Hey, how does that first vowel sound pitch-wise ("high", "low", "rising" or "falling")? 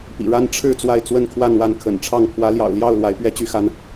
low